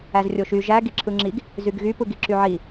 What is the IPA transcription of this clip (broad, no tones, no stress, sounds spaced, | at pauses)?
æ z rʲ o ʃ y ʒ æ ɡ i ǁʰ ɯ ŋ͡ǁ i ɡ | z y ɡ ɣ y p ɯ ɡ i ǁ y ʕ i